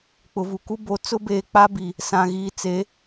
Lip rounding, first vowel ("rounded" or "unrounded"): rounded